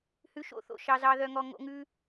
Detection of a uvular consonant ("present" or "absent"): absent